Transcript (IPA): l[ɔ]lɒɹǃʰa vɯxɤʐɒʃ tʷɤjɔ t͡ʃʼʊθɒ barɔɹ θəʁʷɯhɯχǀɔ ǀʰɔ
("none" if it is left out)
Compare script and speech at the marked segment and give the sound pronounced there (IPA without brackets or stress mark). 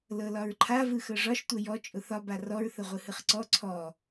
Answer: ɤ